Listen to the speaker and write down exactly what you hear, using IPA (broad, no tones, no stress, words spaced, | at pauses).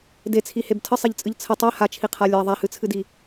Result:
det͡sʰiheb tʰəsˤeʎt͡sʼɨʎ t͡sʰə tˤe hat͡ʃʰiqʰa lʲa ðˤahɨt͡sʰɨdi